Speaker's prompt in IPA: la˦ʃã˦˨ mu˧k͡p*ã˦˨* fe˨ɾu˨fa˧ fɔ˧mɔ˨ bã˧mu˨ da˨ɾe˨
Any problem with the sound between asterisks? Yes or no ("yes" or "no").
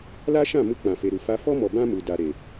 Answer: yes